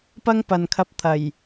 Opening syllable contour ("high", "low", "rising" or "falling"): high